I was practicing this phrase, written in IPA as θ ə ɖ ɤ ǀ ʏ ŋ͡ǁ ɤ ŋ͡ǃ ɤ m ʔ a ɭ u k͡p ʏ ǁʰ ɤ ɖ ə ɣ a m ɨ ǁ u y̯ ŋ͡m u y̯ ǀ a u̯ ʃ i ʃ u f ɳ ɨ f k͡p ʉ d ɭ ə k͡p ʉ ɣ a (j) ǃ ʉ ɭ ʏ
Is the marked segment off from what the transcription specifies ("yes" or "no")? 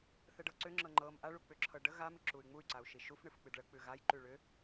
no